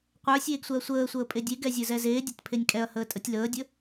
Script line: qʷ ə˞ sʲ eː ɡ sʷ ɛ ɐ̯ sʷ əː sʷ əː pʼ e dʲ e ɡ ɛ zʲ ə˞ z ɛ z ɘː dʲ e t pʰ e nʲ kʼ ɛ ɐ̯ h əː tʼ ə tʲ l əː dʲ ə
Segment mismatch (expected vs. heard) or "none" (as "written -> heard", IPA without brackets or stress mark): ɘː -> eː